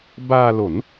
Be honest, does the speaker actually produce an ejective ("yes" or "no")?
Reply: no